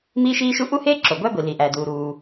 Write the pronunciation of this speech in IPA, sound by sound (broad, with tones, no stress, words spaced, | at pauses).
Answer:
miː˥ʃiː˥ ʃu˥ ʔu˥heː˥ ǁo˩ɡʷæ˥ ɡʷi˩ li˩ʔæː˩duː˩ ɾuː˩